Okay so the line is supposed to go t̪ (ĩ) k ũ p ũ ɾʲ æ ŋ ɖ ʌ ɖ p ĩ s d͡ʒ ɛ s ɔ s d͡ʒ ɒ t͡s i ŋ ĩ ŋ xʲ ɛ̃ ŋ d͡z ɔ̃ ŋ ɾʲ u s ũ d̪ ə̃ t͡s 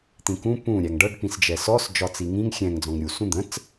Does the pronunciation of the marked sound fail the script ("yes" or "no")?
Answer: no